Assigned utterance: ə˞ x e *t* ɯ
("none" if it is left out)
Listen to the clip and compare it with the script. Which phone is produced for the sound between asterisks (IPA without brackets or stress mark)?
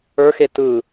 t